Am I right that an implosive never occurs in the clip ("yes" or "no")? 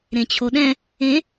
no